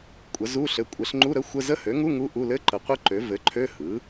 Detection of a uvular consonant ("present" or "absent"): present